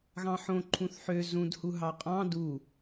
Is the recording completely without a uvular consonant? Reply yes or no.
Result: no